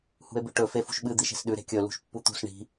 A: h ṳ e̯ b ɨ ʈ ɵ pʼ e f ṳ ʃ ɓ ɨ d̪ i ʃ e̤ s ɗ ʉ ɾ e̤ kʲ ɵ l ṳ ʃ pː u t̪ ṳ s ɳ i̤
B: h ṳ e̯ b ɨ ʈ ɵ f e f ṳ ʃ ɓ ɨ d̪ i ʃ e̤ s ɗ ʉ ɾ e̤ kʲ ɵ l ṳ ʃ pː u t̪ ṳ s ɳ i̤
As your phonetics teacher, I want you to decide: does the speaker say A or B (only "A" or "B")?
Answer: B